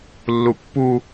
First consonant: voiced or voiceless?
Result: voiced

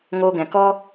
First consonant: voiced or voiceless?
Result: voiced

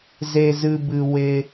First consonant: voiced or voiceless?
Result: voiced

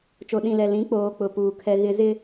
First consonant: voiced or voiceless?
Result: voiceless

